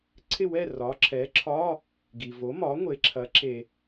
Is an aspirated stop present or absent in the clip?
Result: present